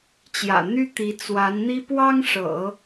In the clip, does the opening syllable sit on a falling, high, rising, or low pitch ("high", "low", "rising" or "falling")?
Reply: low